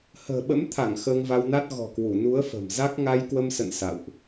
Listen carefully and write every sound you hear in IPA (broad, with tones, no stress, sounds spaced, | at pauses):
h ə̤ː˨˩ ɓ ə̰˧˥ m t̪ʰ a˧˩ ŋ x əː˧ ŋ v a˧ w n a˦˥ t̚ ɣ ɔ̤˨˩ k w u˧˩ n u˨˦ ə̯ f ə̤˨˩ m z a˦˥ k̚ ŋ a˧ j k w ə˧ m s ə̰˧˨ n s a̰˧˨ w ʔ